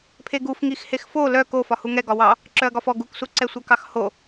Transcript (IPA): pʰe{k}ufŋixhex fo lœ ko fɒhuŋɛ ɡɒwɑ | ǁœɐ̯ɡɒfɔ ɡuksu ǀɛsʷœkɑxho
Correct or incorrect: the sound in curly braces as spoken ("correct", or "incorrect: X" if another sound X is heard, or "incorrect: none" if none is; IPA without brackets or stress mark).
incorrect: ɡ